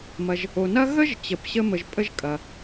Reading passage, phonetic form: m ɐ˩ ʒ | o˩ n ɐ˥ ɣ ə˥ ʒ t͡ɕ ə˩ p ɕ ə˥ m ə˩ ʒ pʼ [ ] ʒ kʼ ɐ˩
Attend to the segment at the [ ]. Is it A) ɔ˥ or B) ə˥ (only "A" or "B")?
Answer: B